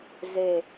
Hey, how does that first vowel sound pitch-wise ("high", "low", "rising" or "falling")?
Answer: low